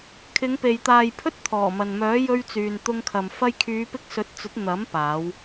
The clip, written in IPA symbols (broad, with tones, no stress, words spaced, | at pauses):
kʰɪ˨˧ŋpe˨jt̪aː˨j pʰɵ˥t̚t̪ʰɔː˨˩mɐ˨nmœː˨˥ jɵ˧ɥt͡syː˨nt̪ʊ˧ŋkʰɐ˨m fɐ˧jkʰyː˨˧pɪ˧k̚ sɵ˨˥t̚t͡sɵ˨˥t̚n̪ɐ˨˥mpaː˨˧w